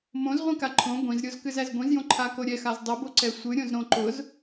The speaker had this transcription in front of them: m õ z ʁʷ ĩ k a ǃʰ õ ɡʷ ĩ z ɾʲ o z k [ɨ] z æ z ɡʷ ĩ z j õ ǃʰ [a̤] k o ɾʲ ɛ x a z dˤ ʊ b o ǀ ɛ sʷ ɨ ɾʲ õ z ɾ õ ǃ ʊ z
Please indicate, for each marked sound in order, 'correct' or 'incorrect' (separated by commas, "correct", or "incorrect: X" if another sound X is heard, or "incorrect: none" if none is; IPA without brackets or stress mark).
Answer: correct, incorrect: a